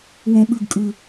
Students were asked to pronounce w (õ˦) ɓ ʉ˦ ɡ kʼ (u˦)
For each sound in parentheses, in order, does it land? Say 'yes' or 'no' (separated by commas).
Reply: yes, no